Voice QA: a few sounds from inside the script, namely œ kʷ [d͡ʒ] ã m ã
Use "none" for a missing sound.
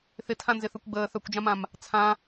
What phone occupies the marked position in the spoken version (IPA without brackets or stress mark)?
d͡ʒ